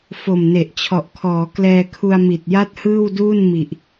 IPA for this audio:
f o˨˩ m n e˨˩ ʔ t͡ɕʰ ɔ˨˩ ʔ kʰ ɔː˩˦ k l ɛː˧ kʰ u˧ a̯ m i˨˩ t̚ j a˥˩ t̚ h ɯː˥˩ w d uː˥˩ n m i˨˩ ʔ

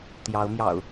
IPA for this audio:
t̪ j ɑ˨˦ ʊ̯ m j ɑ̰˨˩ ʊ̯

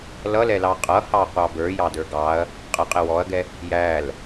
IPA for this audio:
l ʌ l ɛ l ɑ qʼ ʌ h ɑ qʷ ɑ b ə˞ j ɑ d ə˞ ɡ ɑ ɐ̯ | qʼ ə qʼ ɪ w ɔ ɐ̯ ɡ ɛ | j æ l

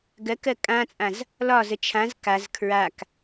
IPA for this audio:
ɡ ɜ k ɜ kʼ ã t͡sʼ ã z | l ɒ z ə t͡ʃʰ ã z k a z kʰ ɹ a k

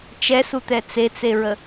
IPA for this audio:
t͡ʃ ɛ s u t̪ ɛ t͡s e t͡s e ɹ ə

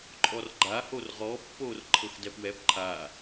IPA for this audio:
ǃʼ ɔ r ɡ͡ǃ a h o r ʁ ɔ pː oː r ǃʰ ɤ x d ɛ p w ɛ p ǃʰ a

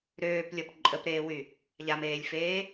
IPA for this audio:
ɾ øː p lʲ ɔ p ǃʼ ə p ɾ eː w y | ʎ a m eː lʲ f eː

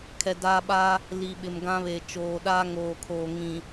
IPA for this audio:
kʰ ɛ˨ d aː˦ ɓ aː˦ | l i˨ ɓ ɪ˨ m ɡ ã˦ β eː˨ t͡ʃ oː˨ ɗ aː˦ ŋ oː˨ kʰ oː˨ ŋ ĩ˨

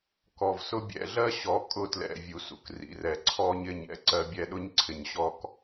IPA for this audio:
k ɔ˨ v s ʊ˦ bʲ ɛ̰˨ ɮ ɜ˦ ɕ ɔ˨˦ kʼ ʊ˦˨ t l ɛ̰˨ vʲ u˨ s ṵ˨ k r ḭ˨ r ɛ˨ ǀʰ ɔ˦ ɲ ɪ˦˨ ɲ ɛ̰˦ ǀ ɜ˦ bʲ ɛ˦ ɗ ʊ˦ ɲ ǀʰ ɪ˨ ɲ ɕ ɔ˦ k

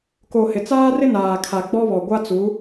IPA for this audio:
k o˨ h ɪ˨ t͡s aː˦ r ɪ˦ n aː˨ kʰ a˨ ɡ͡b ɔ˦ β ɔ˨ ɡʷ a˦ t͡s u˨˦

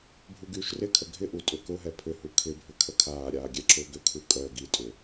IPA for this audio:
bʱ u ɡ yː ʃ r ɪ kʰ ə ɡʱ ɪ ʔ u tʼ ʏ k ʊ ɦ ɛ pʰ ʏ h u kʰ ɪ bʱ ʏ kʰ ə kʰ aː ɾʲ aː ɡʲ ɛ ǁ ʊː ɡ ʏ kʰ u kʼ œ ɡ i tʼ ʏ

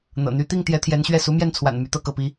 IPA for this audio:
n̪ ɤ̰˨˩ n̪ y˧˥ t̪ i˥˩ ŋ t̪ j ɛ˧˥ t̪ʰ j ɛ˧˥ n ɕ ɥ ɛ˥˩ s u˧˥ m j ɛ˥˩ n t͡sʰ w a̰˨˩ n m y˧˥ t̪ ɤ˥˧ k ɤ˥˩ p i˥

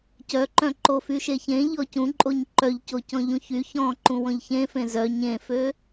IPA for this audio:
c œ ǃ œ̃ ǃ o f y ʃ e ç ẽ ʎ ɔ c ũ ǃʼ o ɲ ǃ œ ʎ c o c ɔ̃ ʎ ũ ç y ç ɔ̃ ǃ ũ w ɔ̃ ʎ ç ẽ f ẽ z œ ɲ ẽ f ø

